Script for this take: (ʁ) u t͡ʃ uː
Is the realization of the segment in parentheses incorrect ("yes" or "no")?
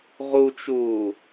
no